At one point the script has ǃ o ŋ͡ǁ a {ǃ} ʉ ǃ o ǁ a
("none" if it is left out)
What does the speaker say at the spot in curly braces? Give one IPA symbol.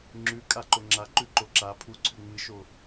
ǃ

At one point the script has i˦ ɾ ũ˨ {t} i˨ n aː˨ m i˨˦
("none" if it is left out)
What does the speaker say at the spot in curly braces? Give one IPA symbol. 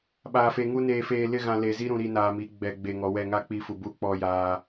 ɾ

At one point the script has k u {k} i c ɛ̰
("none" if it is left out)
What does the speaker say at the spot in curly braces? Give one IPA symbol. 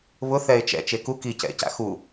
k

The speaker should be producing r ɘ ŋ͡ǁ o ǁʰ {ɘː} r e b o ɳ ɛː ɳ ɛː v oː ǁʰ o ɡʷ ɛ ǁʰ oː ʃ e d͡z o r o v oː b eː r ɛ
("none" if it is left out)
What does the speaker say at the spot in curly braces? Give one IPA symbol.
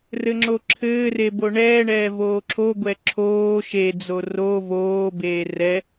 ɘː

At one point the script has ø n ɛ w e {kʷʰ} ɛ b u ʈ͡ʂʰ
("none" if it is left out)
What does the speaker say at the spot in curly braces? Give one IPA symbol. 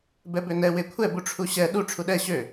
kʷʰ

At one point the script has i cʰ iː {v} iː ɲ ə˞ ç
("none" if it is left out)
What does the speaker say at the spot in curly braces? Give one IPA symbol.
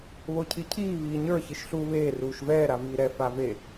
β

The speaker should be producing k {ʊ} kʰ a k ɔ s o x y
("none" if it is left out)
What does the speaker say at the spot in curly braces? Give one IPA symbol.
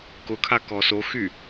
ʊ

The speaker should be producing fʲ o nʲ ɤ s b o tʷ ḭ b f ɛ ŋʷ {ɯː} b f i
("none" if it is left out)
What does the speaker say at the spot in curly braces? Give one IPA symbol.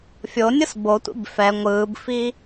ɯː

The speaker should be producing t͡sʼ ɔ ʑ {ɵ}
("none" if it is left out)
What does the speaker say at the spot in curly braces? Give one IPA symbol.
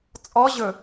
ɵ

